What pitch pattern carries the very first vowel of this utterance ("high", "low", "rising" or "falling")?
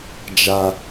high